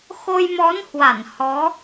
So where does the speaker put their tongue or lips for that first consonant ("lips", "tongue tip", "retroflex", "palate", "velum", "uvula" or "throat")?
velum